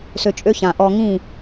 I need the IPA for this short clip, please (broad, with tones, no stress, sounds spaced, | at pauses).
s ø˧ t͡ʃʼ ø˦ ç ã˨ ʔ ɔ˧ ŋ ĩ˦˨